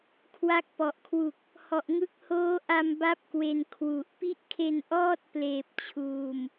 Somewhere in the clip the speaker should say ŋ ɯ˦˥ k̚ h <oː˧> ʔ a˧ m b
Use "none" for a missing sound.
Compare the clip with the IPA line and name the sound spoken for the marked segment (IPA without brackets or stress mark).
oː˦˥